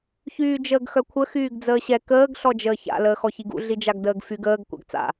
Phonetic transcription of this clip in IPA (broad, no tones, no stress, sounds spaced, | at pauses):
ç yː d͡ʒ əː ɡ x œ kʷʰ ə x yː ɡ d͡z əː ɕ ɛ k əː ɡ ɬ ɔ d͡ʒ əː ç a̰ l əː x ɔ ç i ɡ ṵ ɮ i d͡ʒ a ɡ d əː ɡ f y ɡ əː ɡ kʷ a̰ ɡ t͡s a̰